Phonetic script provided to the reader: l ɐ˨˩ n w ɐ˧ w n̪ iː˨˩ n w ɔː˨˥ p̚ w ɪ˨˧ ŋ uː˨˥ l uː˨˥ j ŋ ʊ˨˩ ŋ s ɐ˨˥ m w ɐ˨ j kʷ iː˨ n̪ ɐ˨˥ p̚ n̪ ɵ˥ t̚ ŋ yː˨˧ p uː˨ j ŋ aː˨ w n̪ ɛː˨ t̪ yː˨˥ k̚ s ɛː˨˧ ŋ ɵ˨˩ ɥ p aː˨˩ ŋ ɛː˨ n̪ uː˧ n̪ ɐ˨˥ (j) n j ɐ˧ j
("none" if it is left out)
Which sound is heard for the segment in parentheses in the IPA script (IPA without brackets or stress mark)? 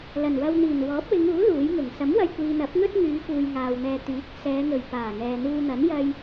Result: none